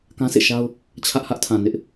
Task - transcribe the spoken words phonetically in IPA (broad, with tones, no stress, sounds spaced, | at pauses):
k ã˦ s ḛ˦˨ ʃ a˦ ʊ̯ | t͡ɕʰ ä˦ ʔ h ä˦ ʔ tʰ ã˨ n ɪ˦ ʔ